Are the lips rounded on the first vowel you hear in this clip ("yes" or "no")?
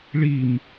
no